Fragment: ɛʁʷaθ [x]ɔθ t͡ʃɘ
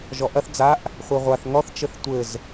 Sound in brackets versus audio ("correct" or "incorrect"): incorrect